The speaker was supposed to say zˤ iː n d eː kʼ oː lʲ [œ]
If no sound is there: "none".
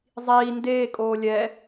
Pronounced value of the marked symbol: ɛ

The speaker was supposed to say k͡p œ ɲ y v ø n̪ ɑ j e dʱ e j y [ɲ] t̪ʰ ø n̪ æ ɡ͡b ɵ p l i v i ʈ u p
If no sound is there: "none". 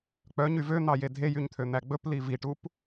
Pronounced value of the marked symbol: ɲ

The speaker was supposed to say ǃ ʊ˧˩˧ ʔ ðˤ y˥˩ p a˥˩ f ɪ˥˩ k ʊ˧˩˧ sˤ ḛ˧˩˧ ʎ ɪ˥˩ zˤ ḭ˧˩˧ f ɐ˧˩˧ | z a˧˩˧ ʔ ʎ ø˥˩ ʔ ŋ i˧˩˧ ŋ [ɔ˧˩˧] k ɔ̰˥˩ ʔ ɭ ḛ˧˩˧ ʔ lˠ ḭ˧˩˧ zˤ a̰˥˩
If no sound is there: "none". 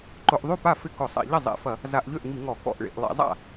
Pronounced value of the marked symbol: ɔ˧˩˧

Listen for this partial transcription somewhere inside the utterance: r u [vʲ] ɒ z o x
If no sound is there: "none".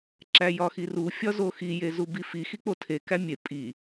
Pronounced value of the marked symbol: fʲ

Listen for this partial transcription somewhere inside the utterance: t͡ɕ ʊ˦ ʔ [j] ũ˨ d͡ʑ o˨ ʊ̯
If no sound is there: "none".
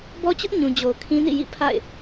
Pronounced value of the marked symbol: ɲ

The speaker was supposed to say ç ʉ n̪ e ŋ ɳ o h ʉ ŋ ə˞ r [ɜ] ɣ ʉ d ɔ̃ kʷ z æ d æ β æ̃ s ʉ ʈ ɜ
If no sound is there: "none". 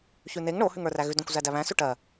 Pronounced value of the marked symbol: æ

